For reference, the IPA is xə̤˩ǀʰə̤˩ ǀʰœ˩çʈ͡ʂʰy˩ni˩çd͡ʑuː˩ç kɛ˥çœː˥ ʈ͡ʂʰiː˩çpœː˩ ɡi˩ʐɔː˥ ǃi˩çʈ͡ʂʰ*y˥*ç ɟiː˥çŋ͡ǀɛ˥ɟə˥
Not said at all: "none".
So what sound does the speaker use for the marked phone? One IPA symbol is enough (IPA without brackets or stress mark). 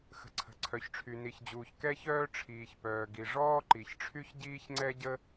y˥